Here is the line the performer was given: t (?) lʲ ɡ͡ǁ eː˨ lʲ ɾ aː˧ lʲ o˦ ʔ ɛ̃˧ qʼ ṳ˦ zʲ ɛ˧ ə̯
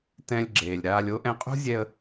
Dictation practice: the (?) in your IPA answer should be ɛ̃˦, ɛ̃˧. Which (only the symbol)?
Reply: ɛ̃˧